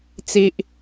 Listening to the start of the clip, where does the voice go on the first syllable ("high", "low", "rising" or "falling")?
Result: high